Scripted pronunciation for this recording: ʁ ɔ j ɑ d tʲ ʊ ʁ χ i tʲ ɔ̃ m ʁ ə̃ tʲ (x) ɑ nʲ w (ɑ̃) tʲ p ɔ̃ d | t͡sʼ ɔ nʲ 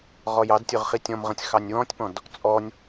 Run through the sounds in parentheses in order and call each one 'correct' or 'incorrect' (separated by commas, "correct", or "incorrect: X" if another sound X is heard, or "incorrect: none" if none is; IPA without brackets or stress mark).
correct, incorrect: ɔ̃